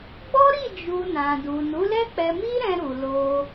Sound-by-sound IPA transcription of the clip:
ɡ͡bɔ˦ɾi˦˨ d͡ʒu˧nã˨ du˨nu˨˦lɛ˦ k͡pɛ˧mi˦ɾɛ̃˧ ɾu˨lo˧

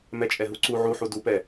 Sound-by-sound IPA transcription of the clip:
mɛt͡ʃʼɛɦuǀu ʕuħu dupɛ

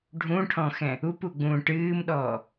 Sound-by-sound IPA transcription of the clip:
ɖʱũʈʰɔ̃xɛ̃ | upuɡ͡bũː ʈɨːmɗɔː

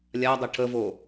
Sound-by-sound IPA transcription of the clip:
lʲadˤʌ ʈʰəvo

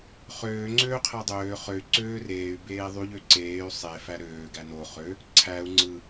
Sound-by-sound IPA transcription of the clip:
χøː ŋ͡ǀøːqʰædˤøː χøy̯ ǀøːreːy̯ beːðˤyʎ øǀeːy̯ sˤe fæɾøː ɡæno χø | ǀʰæu̯ ŋ͡ǀɯ

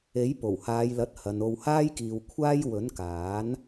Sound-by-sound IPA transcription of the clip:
e˨˥j po˨˩whaː˨˧jlɐ˨˥t̚ hɐ˨no˧w haː˥jkiː˨wkʷʰaː˥j wɵ˨˥nkaː˨˥n

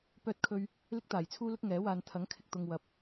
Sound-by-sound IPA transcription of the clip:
pœː˥t̚kʰɵ˥ɥ | lɪ˥k̚t̪aː˨˩jt͡sʰuː˥lʊ˥k̚ ŋɛː˨˥waː˧n t̪ʰɐ˨˥ŋ kʰɪ˧k̚t̪ʊ˧ŋ wɐ˨˥p̚

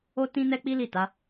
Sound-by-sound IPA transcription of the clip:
o˦tĩ˦ nɛ˦k͡pi˦ li˦˨ta˨˦

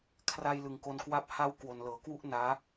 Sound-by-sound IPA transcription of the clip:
kʰra˧j lɯ˨˩ŋko˧nkwa˥˩p̚ ha˥˩w kwo˨˩nlɤː˩˦ kwu˥˩ʔ naː˦˥

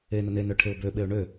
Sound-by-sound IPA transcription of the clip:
enə nenœʈʰeʊ̯ bøɓeʊ̯ ɳø

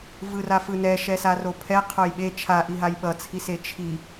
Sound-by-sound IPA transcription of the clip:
vɯrafɯnɛ ʃɛsaropʰɛ qʰojɓe t͡ʃʰaʔiɦaj ɓʌt͡sʰise t͡ʃʰi

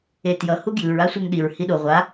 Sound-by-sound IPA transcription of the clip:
etjʌ huɡjɯɹ asʷɛŋɗiɹ hiɗo ʁʷa

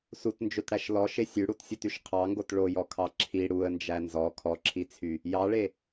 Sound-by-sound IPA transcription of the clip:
sutnd͡ʒøtɽæʃ lɔʃe sʲʉɽutsʲutyʃ qʰɑŋɡot ɭojɔkʰɑ ǁʰi ɽuə̯nd͡ʒæ nzɔ kʰɔǁʰit͡sʰy | jɑɭe

